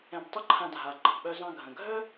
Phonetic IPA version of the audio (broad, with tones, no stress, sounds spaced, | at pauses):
ɛ̃˧ b tˤ ə˥ ǃʰ ã˧ dʱ a˩ ŋ͡ǃ ɑ̤˩ ɓ œ˧ z ɑ̃˧ ɡʱ ə̃˩ ɡʱ œ˥